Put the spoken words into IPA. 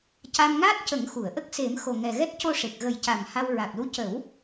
c a˧ m ŋ a˦˥ t̚ c ə˨˩˦ ŋ x u˨˩˨ ə̯ ʔ ə˦˥ k̚ s e˨˩˦ m x o˨˩ ŋ ɛ˨˩ ɣ ɛ˦˥ t̚ c o˧ ʂ e˨˩ k̚ ɣ ə˨˩˦ j c a˨˩ m h a˧ w ɹ a˨˩ k̚ l u˧ c ə˨˩˦ w

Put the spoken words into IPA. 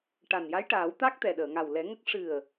ʈ a˨˩ n j a˧˥ j ʈ aː˨˩˦ w t̪ a˦˥ k̚ t̪ ɛ˨˩ ɗ əː˨˩˨ ŋ a˨˩ w l ɛ˨˩˦ ŋ ə˦˥ k̚ ʂ ɨ˨˩ ə̯

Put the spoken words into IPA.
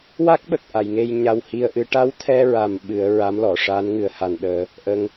w a˦˥ k̚ ɓ ə˨˩ k̚ ʔ a˨˩˨ j ŋ e˧ j ɲ a˧ w h i˧ ə̯ ʔ ɨ˧˥ ʈ a˧˥ w t̪ʰ ɛ˧ ɹ a˨˩ m ɓ ɨ˨˩˦ ə̯ ɹ a˧˥ m l ɔ˨˩˨ ʂ a˧˥ n ŋ ɨ˨˩˦ ə̯ h a˨˩ n ɗ əː˨˩˦ | ʔ ə˧ ŋ

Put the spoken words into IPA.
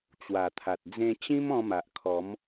t͡ɕ w a˨˩ t̪ʰ a˨ t̚ d͡z ẽ˧ t͡ɕ ĩ˦ m ɔ̃˧ m a˨ ʔ kʰ ɔ˨˦ m

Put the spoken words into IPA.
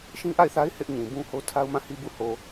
ʃ ĩ˦ ʔ a˦˨ ɪ̯ θ a˦ ɪ̯ h ɪ˦ ʔ ɲ ĩ˨ b ũ˦ h o˦ tʰ a˦ ʊ̯ m ã˦˨ h i˦ b u˦˨ h o˨

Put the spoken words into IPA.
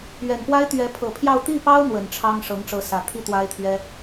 ɥ ɛ˨˩ n p w a˥ ɪ̯ t̪ ɥ ɛ˧˥ pʰ ɤ˨˩ pʰ j ɑ˥˧ ʊ̯ t̪ i˥˩ p ɑ˥ ʊ̯ n̪ w ə˨˩ n ʈ͡ʂʰ ɑ˥ ŋ ʂ ɤ˧˥ ŋ ʈ͡ʂ ɤ˧˥ s ä˨˩ t̪ʰ i˥˩ t̪ w a˥ ɪ̯ t̪ʰ ɥ ɛ˥

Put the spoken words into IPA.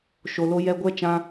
ʃ o˨ l o˧ j ɛ˧ ɡʷ ɛ˦ t͡ʃ ã˧

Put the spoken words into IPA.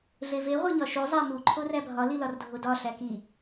ɮ e v e ʁʷ e ɲ ɒ ʃ u zˤ æ m u ǃʰ o r æ bʱ ɒ l i l ɒ r dʱ o d ɒ ɬ æ k i

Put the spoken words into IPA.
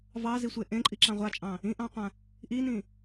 v ɑ z i sʷ e ʔ ẽ ǃʼ i ǁ ɑ̃ ʁʷ a t͡ʃʼ ɑ̃ | ĩ ʔ ɑ̃ qʷ ã | ʔ i n ĩ

